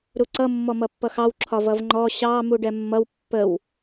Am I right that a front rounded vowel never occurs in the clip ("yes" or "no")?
yes